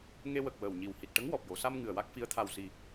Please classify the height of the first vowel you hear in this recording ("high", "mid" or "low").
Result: mid